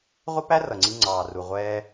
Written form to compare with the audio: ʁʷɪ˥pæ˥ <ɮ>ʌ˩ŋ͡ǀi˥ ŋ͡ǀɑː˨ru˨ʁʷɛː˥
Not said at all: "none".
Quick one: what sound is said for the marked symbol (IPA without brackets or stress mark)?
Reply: r